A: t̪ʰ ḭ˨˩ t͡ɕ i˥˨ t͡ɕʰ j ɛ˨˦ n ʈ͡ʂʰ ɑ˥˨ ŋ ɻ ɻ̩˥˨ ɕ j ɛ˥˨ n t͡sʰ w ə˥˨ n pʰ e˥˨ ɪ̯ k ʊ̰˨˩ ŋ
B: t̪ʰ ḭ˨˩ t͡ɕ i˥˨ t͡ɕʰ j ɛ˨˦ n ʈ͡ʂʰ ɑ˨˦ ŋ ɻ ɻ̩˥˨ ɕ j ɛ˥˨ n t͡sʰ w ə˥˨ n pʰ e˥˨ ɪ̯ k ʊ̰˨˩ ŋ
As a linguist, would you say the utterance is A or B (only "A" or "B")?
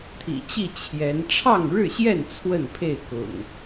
A